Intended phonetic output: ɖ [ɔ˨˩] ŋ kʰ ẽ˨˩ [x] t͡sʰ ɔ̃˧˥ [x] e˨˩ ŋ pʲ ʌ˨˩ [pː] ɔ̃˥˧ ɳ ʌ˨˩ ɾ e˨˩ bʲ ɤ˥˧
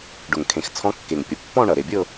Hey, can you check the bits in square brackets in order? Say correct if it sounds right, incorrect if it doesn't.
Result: incorrect: ʊ˨˩, correct, incorrect: kː, correct

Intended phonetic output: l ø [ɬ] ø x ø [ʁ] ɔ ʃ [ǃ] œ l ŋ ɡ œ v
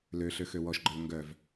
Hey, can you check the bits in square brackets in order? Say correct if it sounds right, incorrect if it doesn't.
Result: correct, incorrect: w, incorrect: ɡ͡ǃ

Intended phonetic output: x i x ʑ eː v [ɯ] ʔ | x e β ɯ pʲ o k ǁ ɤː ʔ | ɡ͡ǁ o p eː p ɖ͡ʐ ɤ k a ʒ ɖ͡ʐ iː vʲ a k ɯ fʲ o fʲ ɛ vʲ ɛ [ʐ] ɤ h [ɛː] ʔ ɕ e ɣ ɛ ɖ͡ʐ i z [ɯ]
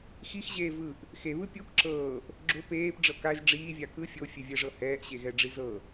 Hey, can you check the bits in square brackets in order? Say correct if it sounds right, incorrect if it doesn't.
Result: correct, correct, correct, incorrect: ɤ

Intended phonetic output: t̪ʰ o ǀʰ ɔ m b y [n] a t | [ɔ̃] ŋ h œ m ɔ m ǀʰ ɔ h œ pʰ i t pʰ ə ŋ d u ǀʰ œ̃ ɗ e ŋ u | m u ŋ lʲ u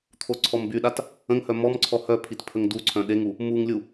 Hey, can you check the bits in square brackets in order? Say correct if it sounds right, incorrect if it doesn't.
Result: incorrect: ɗ, incorrect: ə̃

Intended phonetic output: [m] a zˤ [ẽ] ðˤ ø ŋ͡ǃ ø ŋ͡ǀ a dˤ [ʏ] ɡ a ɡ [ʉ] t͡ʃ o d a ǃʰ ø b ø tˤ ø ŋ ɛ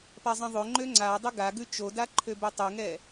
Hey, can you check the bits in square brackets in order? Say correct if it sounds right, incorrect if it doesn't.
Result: incorrect: p, incorrect: ɛ̃, correct, correct

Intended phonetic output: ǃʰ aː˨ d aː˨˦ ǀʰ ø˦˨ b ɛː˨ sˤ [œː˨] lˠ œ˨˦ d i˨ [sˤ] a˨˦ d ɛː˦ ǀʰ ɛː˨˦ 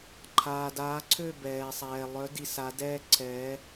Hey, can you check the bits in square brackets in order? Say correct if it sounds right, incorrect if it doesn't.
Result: incorrect: ɛː˨, incorrect: s

